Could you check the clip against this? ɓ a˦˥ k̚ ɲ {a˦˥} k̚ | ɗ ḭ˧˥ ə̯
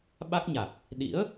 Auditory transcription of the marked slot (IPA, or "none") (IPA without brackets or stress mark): a˨˩